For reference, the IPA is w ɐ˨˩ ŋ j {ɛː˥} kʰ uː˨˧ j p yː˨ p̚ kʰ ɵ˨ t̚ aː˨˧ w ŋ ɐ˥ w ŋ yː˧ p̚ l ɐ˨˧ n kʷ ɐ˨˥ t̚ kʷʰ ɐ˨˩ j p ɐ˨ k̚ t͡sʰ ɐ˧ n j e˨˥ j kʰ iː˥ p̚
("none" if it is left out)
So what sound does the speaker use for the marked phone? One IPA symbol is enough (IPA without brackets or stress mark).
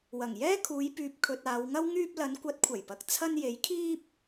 ɛː˥